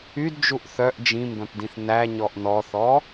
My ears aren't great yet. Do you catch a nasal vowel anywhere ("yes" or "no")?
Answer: yes